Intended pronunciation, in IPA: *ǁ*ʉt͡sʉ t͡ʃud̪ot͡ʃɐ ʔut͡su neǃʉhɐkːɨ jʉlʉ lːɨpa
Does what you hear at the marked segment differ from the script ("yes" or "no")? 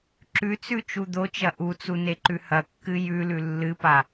no